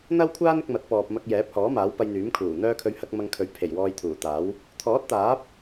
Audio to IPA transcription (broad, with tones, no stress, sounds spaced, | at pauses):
n̪ ɐ˥ w kʷʰ aː˥ n ɪ˧ k̚ m ɐ˨˥ t̚ p ɔː˨ p̚ m ɐ˧ k̚ j ɛː˨˥ p̚ h ɔː˨˥ m aː˨˥ w p ɐ˧ j n̪ yː˨˥ m kʰ uː˨˩ n̪ œː˥ kʰ ɵ˧ ɥ h ɐ˨˥ k̚ m ɐ˧ ŋ kʰ ɵ˨˥ ɥ pʰ e˨˩ j w ɔː˧ j t̪ʰ uː˨˩ t̪ aː˨˥ w | t̪ʰ ɔː˨˥ t̚ t̪ aː˨˥ p̚